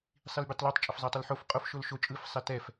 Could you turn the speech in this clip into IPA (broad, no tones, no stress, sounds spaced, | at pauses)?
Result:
sˤ i l bʲ ɛ tˤ l o tˤ t͡ʃʼ ə f zˤ ɛ tˤ ɯ l ħ o f qʼ o f ʃ o l ʃ o t͡ʃʼ ɯ f sˤ ɛ t ɛ f